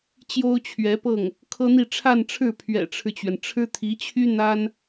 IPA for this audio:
t͡ɕ j o˥ ʊ̯ t͡ɕʰ ɥ ɛ˧˥ p ɤ˥˩ ŋ | kʰ ɤ˥ n̪ i˥˧ ʈ͡ʂʰ a˥˧ n ʈ͡ʂʰ ɻ̩˥˩ pʰ ɥ ɛ̰˨˩ ʈ͡ʂʰ ɻ̩˦ t͡ɕ ɥ ɛ˩ n ʈ͡ʂʰ ɻ̩˥ t̪ʰ i˧˥ t͡ɕʰ y˥ n̪ a˥ n

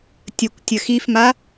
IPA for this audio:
tʲ ə kʷ tʲ ə x i f m a

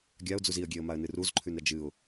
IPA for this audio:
ɡʲ a ʊ̯ d͡z u z i ə̯ ɡʲ e ə̯ m a ə̯ n ɨ r u z ǃʰ ʉ n ɾ ɐ d͡ʒ ɨ ʊ̯

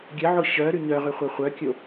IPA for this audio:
ɡʲ ə ʕ o ɕ œ ɾ y ɲ œ ʁ y χʷ œ χʷ œ kʲ o

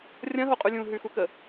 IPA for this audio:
rʲ ɐ̃ ɦ o qʼ ʉ lʲ ũ ɦ ʉ x u k ə

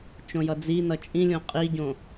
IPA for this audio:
t͡ʃ õ j ʌ d͡z i n ʌ t͡ʃʼ ĩ lʲ õ qʼ i ɟ õ

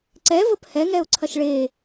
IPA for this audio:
ǀ ɛ v ə p h ɛ ŋ ɛ ʊ̯ ǀʰ ɐ ʃ ɭ e

